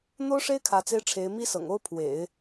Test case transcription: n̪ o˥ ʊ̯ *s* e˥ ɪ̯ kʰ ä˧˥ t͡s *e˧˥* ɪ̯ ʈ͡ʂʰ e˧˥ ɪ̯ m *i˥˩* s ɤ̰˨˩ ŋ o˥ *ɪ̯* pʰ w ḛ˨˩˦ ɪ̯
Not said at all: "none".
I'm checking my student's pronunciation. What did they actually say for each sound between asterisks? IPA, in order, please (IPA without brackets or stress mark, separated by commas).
ʂ, e˥, i˥, ʊ̯